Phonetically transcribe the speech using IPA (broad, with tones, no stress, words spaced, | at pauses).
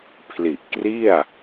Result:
pʰli˨˩ʔkri˥˩a̯